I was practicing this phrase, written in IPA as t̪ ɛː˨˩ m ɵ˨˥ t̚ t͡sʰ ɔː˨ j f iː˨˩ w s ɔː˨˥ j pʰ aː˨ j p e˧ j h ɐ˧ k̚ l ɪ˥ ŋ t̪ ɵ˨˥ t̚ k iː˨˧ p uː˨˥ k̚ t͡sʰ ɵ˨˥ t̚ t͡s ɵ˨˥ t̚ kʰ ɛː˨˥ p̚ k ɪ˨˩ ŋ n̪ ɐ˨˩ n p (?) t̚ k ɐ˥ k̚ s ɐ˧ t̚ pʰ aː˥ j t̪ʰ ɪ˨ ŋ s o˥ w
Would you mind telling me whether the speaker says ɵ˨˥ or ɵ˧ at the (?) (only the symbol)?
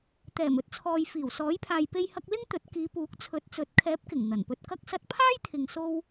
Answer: ɵ˧